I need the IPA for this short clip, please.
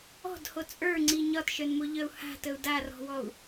ɔ̤ d h o t͡sʼ ə˞ ŋ͡ǀ i ɲ ɒ t ʃ œ n m o ʎ œ u̯ h a̤ t ə u̯ d a r ɔ̤ w ɔ u̯

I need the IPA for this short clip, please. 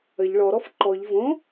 ə ʎ ɭ ɔ ɾ ɔ f ǃ ɔ ʎ v õ

